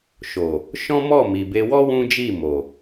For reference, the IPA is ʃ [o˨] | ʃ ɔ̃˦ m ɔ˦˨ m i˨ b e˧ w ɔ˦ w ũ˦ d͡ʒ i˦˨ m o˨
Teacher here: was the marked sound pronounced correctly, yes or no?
yes